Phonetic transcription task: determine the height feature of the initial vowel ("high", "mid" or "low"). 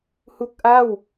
high